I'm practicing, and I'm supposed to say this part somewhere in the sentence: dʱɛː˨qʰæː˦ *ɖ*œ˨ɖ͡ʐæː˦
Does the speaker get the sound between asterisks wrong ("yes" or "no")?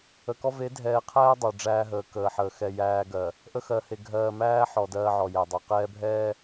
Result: yes